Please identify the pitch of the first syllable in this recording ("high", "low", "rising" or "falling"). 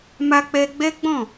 high